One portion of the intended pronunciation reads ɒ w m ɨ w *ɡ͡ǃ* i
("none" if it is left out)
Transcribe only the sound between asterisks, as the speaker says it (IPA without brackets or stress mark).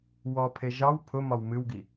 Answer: ɡ